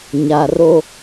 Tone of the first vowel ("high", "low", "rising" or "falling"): low